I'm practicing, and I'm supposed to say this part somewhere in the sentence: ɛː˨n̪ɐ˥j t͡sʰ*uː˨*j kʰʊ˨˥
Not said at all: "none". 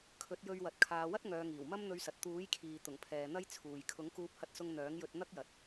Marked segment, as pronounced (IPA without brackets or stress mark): uː˨